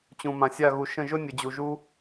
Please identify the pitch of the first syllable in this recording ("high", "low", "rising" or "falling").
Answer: low